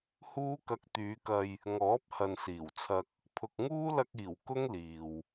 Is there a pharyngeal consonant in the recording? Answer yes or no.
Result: no